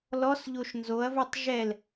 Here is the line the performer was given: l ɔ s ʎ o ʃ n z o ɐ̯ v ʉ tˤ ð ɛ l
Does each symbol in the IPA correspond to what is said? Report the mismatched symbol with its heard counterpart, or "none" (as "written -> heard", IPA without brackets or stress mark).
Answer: ð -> ʒ